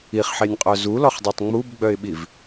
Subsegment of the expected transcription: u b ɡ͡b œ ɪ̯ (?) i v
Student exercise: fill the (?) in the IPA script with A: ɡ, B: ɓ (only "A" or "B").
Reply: B